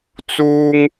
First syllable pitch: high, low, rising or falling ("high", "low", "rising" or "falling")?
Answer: high